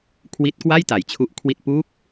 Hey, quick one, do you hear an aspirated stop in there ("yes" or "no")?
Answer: yes